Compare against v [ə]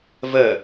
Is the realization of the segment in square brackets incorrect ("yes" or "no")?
no